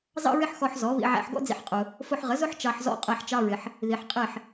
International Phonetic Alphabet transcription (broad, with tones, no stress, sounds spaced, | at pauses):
z ɑ̰˥ ɹ ɪ˥ ħ x ɔ˧ ħ z ɔ˩˥ β ḭ˧ ʕ æ̰˧ ħ ɡ ɔ̰˥ d͡z ḭ˧ ħ qʼ ʊ˩ | f ʊ˧ ħ ʁ ə˩˥ z ʊ˥ ħ t͡ʃ ɑ˧ ħ z ɔ̰˥˩ qʼ ɛ˧ ħ t͡ʃ ɑ˧ ɹ ɪ˩ ħ | ð i˩ ħ qʼ ɪ˥˩ ħ